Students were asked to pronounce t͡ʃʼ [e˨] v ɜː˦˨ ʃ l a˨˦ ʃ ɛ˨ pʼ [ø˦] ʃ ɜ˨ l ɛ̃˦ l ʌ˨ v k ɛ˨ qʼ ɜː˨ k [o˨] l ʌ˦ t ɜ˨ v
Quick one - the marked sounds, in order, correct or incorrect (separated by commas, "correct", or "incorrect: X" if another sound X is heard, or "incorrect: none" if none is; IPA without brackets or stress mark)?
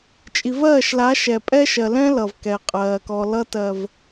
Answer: incorrect: i˨, incorrect: ɛ˦, incorrect: ɔ˨